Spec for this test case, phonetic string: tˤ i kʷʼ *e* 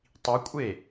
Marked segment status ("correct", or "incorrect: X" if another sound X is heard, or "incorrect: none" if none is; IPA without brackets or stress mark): correct